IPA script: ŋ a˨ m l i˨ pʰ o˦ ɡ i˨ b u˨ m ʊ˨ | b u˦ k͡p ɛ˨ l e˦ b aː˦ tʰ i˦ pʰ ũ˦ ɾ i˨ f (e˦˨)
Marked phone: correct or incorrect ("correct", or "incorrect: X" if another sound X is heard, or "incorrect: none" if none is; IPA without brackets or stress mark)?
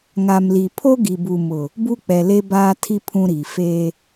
incorrect: e˦